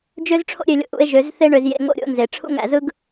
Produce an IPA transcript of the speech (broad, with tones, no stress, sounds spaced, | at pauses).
d͡ʒ ø˦ z ʈ͡ʂʰ o̰˦ ɾʲ ø˧ lʲ o̰˧ ʔ ṵ˧ e̯ ʒ ø˨˦ z θ e˦ ɳ ø˧ z j ḛ˧ ŋ o̰˦ ɾʲ o̰˦ n z e˨ ʈ͡ʂʰ ṵ˦ ŋ æ̰˧ z ɯ˦ ɡ